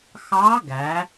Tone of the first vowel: rising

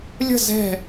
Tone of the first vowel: falling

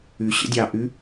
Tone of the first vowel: low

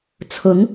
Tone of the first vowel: rising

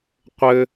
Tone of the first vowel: high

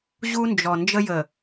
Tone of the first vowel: high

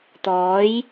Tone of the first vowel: rising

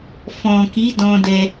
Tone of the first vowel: low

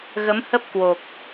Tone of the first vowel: rising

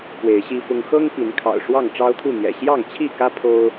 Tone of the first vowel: rising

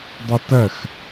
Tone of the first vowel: high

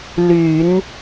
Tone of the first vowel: low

